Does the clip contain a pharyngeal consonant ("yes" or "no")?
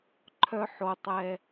yes